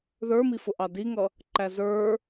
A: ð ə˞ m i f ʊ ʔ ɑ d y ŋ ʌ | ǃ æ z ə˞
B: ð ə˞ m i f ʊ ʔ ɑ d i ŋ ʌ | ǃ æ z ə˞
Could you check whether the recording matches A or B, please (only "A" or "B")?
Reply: B